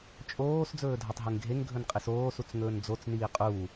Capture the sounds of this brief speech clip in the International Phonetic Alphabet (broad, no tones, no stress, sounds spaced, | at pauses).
t͡ʃʼ oː s d͡z ɵː dʱ a tˤ ɦ e ŋ ɡʱ e ŋ ɡʱ ɵ n qʼ i s oː s u t͡s ŋ ɵː n d͡z o t͡s n iː qʼ uː